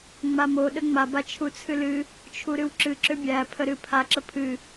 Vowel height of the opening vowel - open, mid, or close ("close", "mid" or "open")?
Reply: open